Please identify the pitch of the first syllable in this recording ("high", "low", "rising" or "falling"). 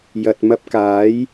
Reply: low